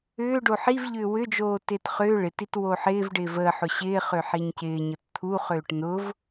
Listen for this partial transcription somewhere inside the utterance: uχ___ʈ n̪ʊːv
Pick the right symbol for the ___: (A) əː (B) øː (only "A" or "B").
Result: B